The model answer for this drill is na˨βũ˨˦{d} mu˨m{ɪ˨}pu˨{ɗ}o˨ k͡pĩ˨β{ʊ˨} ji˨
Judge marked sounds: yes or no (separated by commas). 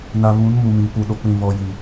no, no, yes, no